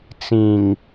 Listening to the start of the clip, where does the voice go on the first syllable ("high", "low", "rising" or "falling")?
low